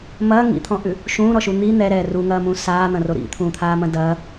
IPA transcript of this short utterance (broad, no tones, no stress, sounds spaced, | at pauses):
m ɐː ŋ ḭ t̪ʰ ɔ̃ ʔ ʉ | ʃ ũː ɾ ɔ ʃ u n̪ i n̪ ɛ ɾ ɛː r u ŋ ɐː m ũː s aː n̪ ɐ̃ r o ɾ ḭ t̪ʰ ũː t̪ʰ aː m ɐ̃ d ɐː